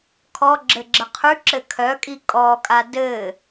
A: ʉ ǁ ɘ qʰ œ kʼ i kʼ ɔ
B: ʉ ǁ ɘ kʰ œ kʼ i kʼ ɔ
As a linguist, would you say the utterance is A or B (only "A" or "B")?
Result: B